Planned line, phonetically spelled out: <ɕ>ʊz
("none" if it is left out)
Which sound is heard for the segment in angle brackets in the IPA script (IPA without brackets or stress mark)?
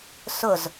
s